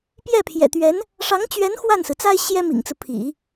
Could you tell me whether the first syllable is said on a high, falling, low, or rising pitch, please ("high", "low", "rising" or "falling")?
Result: falling